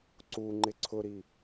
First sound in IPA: ǀ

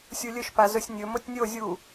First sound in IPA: sʲ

